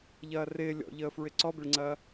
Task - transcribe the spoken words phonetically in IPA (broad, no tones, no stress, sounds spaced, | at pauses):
ʎ ɐː r ɪː lʲ ɔ̰ ʎ əː f ɹ ɪ ǀ ɔ b ɪ ɭ ŋ͡ǀ ɐː